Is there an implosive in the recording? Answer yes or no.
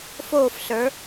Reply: no